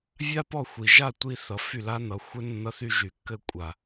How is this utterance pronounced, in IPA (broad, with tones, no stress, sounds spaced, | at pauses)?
vʲ a˦ p ɔ˦˨ xʷ i˨ ʒ a˦˨ tʷ i˧ θ ʌ˨ f y˦˨ l a˦ n ʌ˨˦ xʷ ɘ˧ nː ʌ˧ θ y˧ ʒ y˨ kː ɘ˦˨ kʷʼ a˨